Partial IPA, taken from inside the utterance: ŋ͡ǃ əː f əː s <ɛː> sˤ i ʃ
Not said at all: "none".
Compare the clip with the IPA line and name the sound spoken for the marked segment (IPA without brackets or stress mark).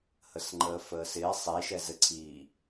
ɪː